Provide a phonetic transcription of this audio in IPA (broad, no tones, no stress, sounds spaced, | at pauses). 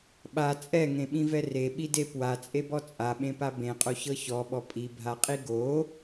ɓ a t͡sʼ ɛ ŋ ẽ ɓ ĩ v ɛ r e ɓ i d e p w a t͡sʼ e b ɔ t͡sʼ a ɓ ẽ p a b ẽ qʼ o ç ɤ ç ɔ ɓ ɔ pʼ i bʱ a qʼ i ɡ o